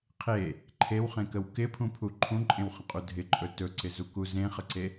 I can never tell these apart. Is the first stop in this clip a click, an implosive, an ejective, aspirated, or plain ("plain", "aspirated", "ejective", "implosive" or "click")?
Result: aspirated